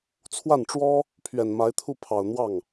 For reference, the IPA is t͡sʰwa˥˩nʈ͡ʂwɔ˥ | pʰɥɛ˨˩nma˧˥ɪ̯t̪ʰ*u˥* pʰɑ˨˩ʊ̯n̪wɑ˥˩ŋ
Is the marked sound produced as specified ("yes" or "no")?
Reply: no